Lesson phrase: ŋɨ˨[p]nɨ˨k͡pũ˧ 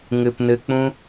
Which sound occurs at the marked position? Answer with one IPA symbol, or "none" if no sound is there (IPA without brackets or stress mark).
p